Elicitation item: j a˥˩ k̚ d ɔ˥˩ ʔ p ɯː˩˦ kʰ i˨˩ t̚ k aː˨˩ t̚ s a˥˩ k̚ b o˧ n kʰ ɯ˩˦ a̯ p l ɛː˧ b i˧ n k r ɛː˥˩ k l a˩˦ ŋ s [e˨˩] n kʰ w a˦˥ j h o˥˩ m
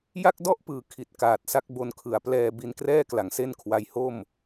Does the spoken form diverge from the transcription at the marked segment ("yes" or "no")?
yes